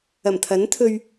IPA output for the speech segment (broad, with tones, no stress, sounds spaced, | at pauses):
ɐ˨˩ m t̪ʰ ɐ˨˥ n t̪ʰ ɵ˧ ɥ